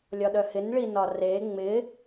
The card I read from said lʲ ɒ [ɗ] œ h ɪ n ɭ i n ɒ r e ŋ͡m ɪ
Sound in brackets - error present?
no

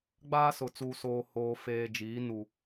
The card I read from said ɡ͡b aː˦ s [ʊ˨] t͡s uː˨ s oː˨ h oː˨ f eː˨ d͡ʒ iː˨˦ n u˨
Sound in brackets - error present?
no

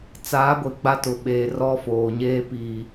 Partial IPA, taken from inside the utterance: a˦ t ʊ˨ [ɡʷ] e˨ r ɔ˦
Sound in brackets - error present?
yes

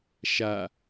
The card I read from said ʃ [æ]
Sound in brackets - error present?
yes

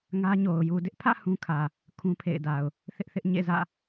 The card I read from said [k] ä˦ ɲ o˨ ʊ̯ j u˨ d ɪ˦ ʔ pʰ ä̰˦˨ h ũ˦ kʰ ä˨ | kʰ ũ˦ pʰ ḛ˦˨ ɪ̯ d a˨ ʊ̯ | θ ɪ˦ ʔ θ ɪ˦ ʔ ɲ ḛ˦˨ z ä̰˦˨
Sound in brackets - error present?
yes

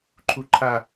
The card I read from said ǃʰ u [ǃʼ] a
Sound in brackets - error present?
yes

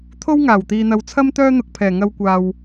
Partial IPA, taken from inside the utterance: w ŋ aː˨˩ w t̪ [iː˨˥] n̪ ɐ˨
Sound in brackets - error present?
yes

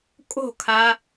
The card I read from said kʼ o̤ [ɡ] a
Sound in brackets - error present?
yes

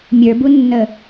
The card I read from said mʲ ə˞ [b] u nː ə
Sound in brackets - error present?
no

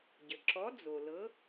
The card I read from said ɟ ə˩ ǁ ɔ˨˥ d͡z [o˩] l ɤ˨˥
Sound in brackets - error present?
no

